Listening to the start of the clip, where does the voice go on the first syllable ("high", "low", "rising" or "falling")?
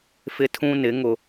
high